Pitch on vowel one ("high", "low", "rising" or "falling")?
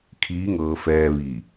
rising